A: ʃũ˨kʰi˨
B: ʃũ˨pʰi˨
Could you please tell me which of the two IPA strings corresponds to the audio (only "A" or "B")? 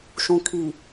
A